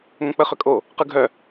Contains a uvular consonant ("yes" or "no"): yes